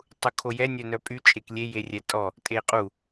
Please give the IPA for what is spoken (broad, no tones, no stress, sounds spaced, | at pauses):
tˤ u kʰ o j ɛ nʲ œ n œ pʼ y t͡ʃʼ e k lʲ e j e rʲ ɛ tʼ ɔ | tʼ e qʼ u